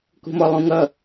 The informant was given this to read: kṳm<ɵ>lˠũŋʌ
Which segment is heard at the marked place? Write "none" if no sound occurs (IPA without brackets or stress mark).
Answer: ɔ